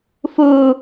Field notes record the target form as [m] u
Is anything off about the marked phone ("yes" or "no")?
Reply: yes